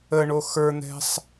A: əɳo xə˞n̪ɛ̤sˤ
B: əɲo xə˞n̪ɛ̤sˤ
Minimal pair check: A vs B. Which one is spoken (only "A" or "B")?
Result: A